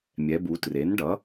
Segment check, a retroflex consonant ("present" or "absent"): present